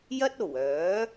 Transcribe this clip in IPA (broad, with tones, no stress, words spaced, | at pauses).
jɐ˥t̚o˨˩wœː˨˥